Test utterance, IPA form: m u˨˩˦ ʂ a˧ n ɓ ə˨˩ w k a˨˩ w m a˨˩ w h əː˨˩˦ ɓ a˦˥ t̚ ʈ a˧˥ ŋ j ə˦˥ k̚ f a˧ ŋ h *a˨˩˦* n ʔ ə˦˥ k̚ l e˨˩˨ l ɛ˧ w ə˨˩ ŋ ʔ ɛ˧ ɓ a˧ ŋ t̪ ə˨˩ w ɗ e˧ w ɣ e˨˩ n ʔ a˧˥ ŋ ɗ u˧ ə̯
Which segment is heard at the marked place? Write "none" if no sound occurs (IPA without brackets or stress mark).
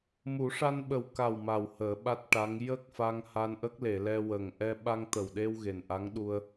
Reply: a˧